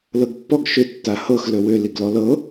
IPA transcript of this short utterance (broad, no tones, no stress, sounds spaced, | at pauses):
l ɤ ɡ pː ɔ ɡ ʃ ʏ tː a h ɤ x l ɵ w ʏ l i ɡ l ɔ l ɤ